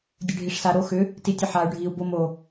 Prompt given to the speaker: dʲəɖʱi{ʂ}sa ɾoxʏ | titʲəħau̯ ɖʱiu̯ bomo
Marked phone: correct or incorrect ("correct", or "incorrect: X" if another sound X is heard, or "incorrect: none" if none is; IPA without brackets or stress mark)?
correct